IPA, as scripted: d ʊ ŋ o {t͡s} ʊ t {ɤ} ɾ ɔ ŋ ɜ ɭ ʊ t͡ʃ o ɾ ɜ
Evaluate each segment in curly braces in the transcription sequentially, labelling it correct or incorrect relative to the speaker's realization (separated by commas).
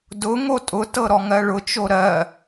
incorrect, correct